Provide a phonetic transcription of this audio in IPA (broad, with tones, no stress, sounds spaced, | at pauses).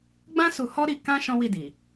ɡ͡b ã˦ s u˧ h ɔ˦ ɾ i˧ k ã˦ ʃ ɔ̃˦ w i˦˨ d i˨